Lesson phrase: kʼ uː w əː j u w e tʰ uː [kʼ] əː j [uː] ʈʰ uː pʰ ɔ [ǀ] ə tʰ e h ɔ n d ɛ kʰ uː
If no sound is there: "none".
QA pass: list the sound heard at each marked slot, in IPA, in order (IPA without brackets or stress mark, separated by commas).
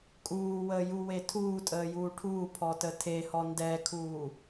tʼ, uː, t